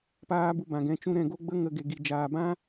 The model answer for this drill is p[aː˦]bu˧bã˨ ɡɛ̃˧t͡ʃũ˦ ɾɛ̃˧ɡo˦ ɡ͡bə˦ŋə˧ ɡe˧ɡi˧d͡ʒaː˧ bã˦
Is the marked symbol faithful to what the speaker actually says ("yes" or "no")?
yes